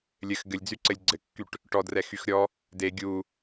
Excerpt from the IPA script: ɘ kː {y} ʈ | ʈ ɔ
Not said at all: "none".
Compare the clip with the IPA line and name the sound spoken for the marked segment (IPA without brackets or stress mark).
y